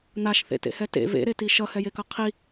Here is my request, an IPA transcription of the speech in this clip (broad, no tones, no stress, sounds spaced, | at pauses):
n̪ a ʃ θ ḛ t ḛ h ɛ t ḛ v ḛ ɾ e t i ʃ ʌ h ɛ j e k ʌ qʰ i